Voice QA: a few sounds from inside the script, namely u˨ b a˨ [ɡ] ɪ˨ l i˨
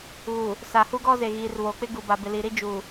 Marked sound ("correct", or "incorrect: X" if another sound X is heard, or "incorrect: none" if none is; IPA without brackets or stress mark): incorrect: b